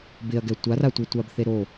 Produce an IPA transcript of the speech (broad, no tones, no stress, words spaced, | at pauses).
bɪɐ̯ɡɛ tʷar atʷetʷabθe ɾo